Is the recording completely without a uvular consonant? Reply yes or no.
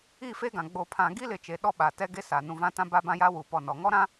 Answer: yes